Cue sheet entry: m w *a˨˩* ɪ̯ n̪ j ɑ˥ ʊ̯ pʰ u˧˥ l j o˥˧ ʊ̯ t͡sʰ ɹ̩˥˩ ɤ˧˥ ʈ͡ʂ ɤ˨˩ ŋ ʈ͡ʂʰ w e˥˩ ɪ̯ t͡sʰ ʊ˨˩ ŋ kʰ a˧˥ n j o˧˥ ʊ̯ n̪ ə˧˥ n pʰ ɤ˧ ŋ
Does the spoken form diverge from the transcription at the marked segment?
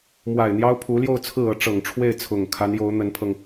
no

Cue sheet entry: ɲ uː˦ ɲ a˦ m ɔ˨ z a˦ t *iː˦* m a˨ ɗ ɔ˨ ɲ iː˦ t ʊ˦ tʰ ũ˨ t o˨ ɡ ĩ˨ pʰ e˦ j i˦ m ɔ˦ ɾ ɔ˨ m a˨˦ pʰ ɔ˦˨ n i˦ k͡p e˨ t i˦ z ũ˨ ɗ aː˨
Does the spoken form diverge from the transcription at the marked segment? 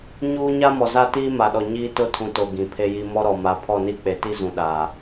no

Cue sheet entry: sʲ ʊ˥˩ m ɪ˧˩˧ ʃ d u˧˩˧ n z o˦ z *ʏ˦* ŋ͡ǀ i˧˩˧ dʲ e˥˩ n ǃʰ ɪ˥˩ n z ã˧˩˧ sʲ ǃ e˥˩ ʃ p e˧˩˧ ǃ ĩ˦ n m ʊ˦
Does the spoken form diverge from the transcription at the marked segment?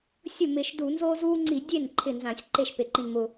yes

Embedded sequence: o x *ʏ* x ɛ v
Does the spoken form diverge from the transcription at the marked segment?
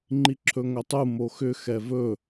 no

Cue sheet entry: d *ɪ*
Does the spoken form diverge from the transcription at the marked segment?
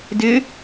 no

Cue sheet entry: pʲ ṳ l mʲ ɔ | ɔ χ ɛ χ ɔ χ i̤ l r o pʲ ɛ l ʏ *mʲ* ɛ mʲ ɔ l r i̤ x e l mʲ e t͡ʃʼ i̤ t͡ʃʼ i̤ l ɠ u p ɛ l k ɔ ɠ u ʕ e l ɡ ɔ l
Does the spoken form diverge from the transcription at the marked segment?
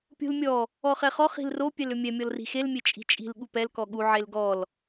no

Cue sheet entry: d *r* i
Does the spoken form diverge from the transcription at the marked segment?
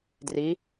no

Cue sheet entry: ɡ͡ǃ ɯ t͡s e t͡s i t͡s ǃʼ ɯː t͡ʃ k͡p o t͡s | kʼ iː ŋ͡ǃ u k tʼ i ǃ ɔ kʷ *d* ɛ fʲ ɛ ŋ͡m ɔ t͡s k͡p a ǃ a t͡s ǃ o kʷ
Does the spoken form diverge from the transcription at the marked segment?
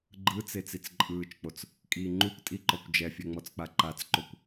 yes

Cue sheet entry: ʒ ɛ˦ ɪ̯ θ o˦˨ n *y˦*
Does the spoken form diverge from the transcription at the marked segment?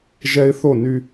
no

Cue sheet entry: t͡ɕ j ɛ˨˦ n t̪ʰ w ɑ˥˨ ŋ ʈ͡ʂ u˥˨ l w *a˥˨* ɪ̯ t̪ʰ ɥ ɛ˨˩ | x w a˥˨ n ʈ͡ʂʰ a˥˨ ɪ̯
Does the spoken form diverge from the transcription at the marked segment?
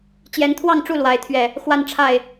yes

